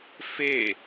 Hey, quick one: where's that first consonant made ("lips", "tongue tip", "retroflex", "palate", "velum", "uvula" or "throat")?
lips